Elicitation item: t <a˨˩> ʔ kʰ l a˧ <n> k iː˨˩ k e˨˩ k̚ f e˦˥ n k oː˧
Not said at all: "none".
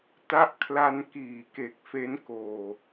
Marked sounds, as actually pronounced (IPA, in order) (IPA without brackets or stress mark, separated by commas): a˦˥, n